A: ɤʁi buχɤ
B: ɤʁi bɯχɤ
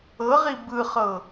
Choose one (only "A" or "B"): B